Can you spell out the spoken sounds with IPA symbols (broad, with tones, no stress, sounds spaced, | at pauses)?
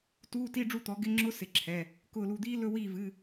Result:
t uː˧˥˧ t i˧˥˧ ɖ͡ʐ u˥˩ t̪ ɔ˨˦ ɡ ɪ˧˥˧ ŋ͡ǁ ʊ˧˥˧ s ɪ˧˩ ǁʰ ɛ˩˧˩ | k ʊː˧˩ l u˧˩ d̪ iː˦˥ l ɵ˧˥˧ w iː˥˩ v ɨ˩˧˩